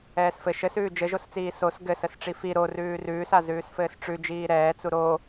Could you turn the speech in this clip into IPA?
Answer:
ɛː s f ɘ ʃ ɘ s ʉː d͡ʒ ɘ ʒ o s t͡s iː s o s ɡ ɘ s ə s ʈ͡ʂ i f i ɾ o r ʉː r ʉː s a z ʉː s f ɘː s ʈ͡ʂ ʉ d͡ʒ iː ɾ ɛː t͡s u ɾ o

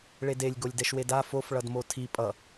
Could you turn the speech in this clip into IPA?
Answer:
ɭ e d e lʲ ɡ o lʲ d ɛ ʃ w e d a f o f ɭ ʌ d m o tʰ i pʼ ʌ

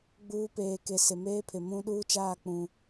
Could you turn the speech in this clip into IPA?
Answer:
ɡ͡b uː˦ p eː˨ k e˨ s ɪ˨ m eː˦ pʰ ɪ˨ m ũ˦ ɗ uː˦ t͡ʃ aː˦˨ k͡p ũ˨

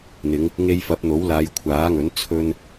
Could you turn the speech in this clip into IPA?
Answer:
n̪ ɪ˨˧ ŋ | ŋ e˧ j f ɐ˨˥ p̚ n̪ o˨˥ w l aː˨˧ j kʷʰ aː˨˥ ŋ ɵ˨˥ n t͡sʰ ɵ˧ n

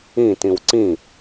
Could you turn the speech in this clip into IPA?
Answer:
ĩ t ĩ w ǀ ĩ

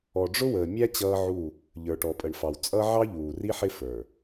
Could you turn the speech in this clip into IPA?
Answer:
ɔ˨ ɖ͡ʐ ʊ˦ w əː˨ mʲ æ˦ t͡ɕ ʌː˦ ʕ u˦˨ | ʎ ə˞˨ ʈ ɔ˨ pʼ ə˨ ɳ f ɑ˨ w t͡sʼ ʌ˦ ʕ ɑ˦ ʎ uː˨ r i˦ ħ ɪ˦ f ə˞˨

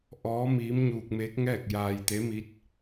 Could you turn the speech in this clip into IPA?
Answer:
ʔ ɔː˧˥ m iː˧˥ m ɲ uː˧ k̚ m eː˧˥ k̚ ŋ ɛː˥˨ k̚ j aː˧ j t̪ e˧˥ m i˧˥ t̚

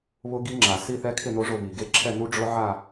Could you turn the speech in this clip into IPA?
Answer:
β ʊ˦˥ ɡ i˦˥ ŋ͡ǁ a˩ s i˥˧ θ ɛ˦˥ kʰ ɪ˥˧ n o˦˥ ʐ ʊ˥˧ β i˩ ɡ e˦˥ ǁʰ ɛ˥˧ n u˦˥ ɖ͡ʐ ʊ˦˥ ʕ a˥˧

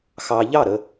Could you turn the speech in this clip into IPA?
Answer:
x ɑ˧ ʎ ɑ˥˨ ɾ ə˧

